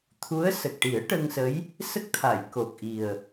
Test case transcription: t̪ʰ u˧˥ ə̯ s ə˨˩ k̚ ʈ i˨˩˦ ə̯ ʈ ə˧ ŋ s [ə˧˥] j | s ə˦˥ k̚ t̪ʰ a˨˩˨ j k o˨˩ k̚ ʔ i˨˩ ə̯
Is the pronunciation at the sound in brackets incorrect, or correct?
correct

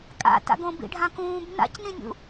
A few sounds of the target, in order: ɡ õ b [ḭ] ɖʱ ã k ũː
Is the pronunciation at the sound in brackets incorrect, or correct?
correct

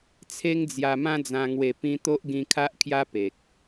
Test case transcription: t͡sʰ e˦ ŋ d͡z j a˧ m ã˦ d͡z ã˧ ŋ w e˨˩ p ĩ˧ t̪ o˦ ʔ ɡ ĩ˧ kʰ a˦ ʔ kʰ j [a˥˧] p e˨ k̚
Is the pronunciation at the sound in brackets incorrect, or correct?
incorrect: a˦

